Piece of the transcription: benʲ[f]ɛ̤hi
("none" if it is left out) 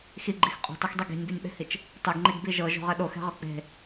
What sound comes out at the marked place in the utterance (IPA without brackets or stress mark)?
ɓ